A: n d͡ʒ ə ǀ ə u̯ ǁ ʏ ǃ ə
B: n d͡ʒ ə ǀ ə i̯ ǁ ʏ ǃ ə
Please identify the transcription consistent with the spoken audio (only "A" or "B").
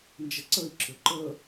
B